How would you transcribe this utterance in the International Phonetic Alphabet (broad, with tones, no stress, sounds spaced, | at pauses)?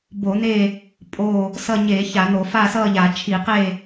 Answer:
b o˧˩˧ n̪ e˦˨ | pʼ o˦˨ | s ʌ˦˨ ɲ e˧˩˧ ç a˧˩˧ n̪ o˧˩˧ f a˦˨ s ʌ˦˨ ʎ a˧˩˧ t͡ʃʰ i˧˩˧ q e˦˨